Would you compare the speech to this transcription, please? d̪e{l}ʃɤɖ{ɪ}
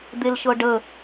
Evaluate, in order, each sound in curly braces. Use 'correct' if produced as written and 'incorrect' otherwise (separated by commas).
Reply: correct, incorrect